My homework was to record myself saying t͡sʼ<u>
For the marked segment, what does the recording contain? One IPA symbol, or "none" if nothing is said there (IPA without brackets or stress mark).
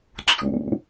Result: ṵ